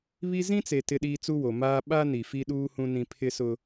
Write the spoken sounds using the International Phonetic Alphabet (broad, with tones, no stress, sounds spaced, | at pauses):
β i˦ z ĩ˦ t͡s e˨ t ɪ˦ ɗ iː˦ t͡s u˦ w o˨ m aː˦ ɓ a˦ n i˨ f i˦ ɗ uː˦ h ũ˦ n ĩ˦ pʰ ɪ˦ s ʊ˦